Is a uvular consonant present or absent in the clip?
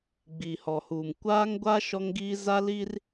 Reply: absent